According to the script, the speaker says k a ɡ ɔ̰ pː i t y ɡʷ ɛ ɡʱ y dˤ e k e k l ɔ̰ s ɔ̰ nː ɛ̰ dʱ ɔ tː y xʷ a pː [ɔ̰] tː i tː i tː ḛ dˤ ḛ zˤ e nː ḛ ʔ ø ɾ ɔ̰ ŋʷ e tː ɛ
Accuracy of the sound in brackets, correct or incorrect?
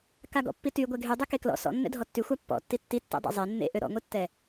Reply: correct